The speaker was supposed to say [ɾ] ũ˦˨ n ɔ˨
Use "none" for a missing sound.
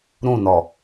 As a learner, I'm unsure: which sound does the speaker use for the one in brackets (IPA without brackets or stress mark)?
ɾ